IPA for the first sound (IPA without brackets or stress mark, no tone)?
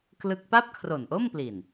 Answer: k